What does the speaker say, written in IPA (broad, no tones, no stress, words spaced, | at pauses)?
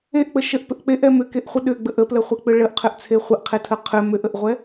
eʔk͡pə ʃəʔpʏʔ k͡peʔɛ mʏkeʔχʷə ɗʏɡ͡bəʔ əpləχʷek͡pʏ ɭəʔqʰʏʔt͡sʰe χʷəʔqʰetʰə qʰʏ mʏʔəʔʁʷɛ